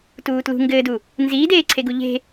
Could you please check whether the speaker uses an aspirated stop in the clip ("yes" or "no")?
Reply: yes